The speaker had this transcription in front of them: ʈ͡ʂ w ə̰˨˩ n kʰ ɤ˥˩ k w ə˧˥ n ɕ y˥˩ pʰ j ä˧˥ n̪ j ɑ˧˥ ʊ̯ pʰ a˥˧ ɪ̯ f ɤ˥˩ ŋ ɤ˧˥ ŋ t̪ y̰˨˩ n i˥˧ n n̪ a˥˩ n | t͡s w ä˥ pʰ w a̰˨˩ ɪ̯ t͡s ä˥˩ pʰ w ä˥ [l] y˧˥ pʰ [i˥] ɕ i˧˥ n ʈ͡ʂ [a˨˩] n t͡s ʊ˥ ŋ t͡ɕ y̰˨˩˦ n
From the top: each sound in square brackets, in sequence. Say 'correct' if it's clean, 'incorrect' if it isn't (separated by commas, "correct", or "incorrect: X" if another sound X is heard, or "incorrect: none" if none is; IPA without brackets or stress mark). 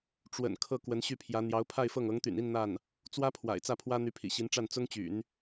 incorrect: n̪, incorrect: ḭ˨˩, incorrect: a˥˩